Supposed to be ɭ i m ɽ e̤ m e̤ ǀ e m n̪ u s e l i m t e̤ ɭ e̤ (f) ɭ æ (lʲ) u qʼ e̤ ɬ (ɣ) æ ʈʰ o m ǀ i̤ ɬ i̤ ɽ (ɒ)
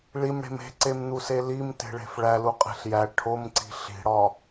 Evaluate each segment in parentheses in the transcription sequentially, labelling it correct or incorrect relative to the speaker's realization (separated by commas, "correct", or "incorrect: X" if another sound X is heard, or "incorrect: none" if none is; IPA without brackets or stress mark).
correct, incorrect: l, incorrect: j, correct